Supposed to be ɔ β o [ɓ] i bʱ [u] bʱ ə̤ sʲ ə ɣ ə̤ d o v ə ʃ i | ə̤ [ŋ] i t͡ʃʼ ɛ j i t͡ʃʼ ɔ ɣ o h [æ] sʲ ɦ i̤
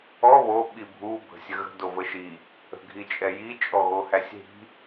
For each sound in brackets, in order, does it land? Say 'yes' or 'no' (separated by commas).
yes, yes, no, yes